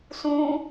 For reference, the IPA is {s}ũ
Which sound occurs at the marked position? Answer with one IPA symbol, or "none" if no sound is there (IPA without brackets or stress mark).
s